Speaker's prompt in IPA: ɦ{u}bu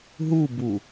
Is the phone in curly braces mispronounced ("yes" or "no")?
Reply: no